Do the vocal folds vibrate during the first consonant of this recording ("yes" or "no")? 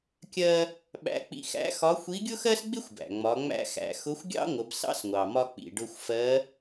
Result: no